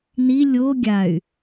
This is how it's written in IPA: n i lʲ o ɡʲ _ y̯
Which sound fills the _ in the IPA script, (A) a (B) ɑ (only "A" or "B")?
A